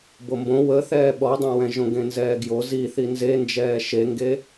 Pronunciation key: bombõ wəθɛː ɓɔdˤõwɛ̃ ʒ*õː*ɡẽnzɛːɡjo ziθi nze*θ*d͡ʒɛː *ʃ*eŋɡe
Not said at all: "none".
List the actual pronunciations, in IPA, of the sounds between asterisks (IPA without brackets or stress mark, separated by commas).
õ, n, ʃ